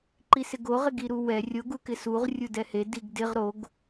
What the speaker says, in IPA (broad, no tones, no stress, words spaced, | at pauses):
ǃisɪɡoʁ ɪɡiɾuwɛ rʲoɡ ukɪsuʁ rʲudɛhe diɡdɪʁ ɾoɡ